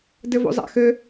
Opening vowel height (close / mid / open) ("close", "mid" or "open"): mid